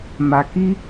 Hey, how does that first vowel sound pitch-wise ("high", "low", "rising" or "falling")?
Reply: low